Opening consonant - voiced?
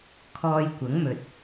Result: no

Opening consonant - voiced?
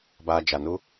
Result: yes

